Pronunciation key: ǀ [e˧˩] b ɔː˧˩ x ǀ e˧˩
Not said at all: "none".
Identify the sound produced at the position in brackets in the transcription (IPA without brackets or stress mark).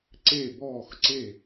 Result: e˧˩